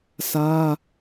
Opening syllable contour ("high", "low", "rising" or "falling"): high